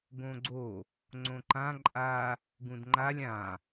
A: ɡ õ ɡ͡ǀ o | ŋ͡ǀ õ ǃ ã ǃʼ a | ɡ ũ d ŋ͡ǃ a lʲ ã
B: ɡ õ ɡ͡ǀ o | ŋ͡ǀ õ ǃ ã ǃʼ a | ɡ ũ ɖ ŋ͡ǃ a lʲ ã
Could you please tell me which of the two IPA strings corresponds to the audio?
A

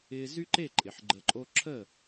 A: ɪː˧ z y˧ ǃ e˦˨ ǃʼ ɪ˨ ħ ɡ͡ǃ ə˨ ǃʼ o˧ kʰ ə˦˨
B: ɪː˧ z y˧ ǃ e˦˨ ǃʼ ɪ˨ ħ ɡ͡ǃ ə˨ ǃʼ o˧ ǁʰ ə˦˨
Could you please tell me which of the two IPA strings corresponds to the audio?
B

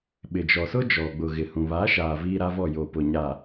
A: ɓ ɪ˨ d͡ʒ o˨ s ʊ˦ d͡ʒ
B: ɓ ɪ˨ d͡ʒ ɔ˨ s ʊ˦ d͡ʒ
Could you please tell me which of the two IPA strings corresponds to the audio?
B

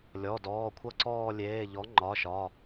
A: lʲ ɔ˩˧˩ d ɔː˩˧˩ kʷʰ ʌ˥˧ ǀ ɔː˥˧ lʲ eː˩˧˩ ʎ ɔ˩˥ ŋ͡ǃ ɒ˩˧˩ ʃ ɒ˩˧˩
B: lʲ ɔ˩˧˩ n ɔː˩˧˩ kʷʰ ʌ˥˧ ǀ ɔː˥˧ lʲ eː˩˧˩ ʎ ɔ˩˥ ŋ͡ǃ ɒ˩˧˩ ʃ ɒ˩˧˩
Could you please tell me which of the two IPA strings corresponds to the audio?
A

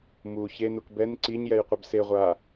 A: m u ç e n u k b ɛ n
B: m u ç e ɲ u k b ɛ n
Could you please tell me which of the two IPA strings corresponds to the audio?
A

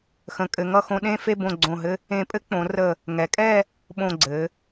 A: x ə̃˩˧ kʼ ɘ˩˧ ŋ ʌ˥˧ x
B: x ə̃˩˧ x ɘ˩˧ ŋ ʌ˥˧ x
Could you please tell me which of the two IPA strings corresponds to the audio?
A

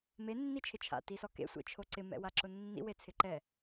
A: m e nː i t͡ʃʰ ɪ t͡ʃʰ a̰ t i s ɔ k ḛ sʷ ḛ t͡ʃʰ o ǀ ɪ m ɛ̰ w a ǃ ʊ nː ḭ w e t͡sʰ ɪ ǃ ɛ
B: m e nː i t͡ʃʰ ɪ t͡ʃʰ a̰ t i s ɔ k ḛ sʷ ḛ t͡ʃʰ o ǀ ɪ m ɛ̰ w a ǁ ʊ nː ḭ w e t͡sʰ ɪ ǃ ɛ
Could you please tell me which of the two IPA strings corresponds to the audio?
B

